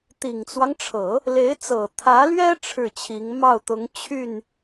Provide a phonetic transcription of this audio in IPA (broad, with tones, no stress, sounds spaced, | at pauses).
t̪ i˨˩ ŋ t͡s w ɑ˦ ŋ ʈ͡ʂʰ ɤ˨˩˦ | l e˧˥ ɪ̯ t͡s ɤ˨˩ t̪ʰ ä˧˥ l ɥ ɛ˥ ʈ͡ʂʰ ɻ̩˥˩ t͡ɕʰ i˧˥ ŋ m ɑ˥˩ ʊ̯ t̪ ʊ˧˥ ŋ t͡ɕʰ y˥˩ n